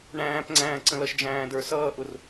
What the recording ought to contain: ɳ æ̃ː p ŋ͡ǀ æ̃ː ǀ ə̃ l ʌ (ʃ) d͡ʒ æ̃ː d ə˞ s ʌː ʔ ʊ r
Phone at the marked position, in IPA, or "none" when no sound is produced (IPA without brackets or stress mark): ʃ